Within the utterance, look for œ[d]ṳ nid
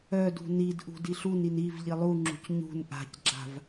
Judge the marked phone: correct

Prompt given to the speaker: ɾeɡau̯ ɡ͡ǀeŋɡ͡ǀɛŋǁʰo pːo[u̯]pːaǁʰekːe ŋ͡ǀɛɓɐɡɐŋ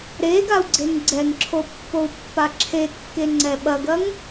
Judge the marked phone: correct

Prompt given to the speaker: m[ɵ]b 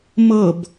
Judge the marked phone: incorrect: ɤ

